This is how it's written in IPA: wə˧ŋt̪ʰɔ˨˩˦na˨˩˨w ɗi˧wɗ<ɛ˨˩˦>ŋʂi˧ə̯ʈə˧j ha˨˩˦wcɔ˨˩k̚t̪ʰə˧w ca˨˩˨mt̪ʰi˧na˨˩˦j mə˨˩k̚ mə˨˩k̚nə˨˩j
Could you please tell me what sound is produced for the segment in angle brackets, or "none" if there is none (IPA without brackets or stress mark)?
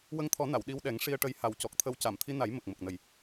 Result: ɛ˨˩˦